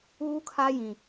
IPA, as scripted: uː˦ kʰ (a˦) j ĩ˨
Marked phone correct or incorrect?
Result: correct